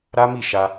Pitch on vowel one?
high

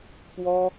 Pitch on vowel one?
high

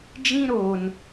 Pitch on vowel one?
high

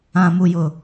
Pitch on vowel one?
low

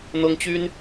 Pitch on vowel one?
high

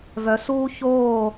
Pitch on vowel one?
rising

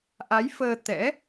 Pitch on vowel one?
rising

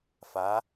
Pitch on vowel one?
rising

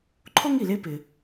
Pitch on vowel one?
high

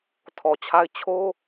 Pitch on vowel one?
low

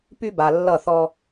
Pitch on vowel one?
high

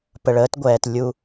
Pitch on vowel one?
low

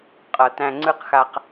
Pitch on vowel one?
low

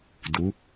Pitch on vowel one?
rising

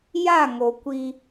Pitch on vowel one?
falling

